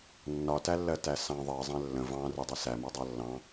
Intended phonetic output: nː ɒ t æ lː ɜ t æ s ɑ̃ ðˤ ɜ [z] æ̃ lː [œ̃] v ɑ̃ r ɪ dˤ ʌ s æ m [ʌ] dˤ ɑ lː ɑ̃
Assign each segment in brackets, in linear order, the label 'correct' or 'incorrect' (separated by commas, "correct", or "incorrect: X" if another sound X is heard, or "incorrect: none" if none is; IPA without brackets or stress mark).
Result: incorrect: zˤ, incorrect: ə̃, incorrect: ɒ